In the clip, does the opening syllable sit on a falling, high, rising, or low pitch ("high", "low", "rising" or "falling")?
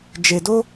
low